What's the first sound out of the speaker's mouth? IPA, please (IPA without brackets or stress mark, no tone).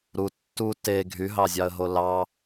ɾ